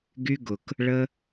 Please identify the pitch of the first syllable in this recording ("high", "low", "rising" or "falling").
high